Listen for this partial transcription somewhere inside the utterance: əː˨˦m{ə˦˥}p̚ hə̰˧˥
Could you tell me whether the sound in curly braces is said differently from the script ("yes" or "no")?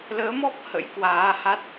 yes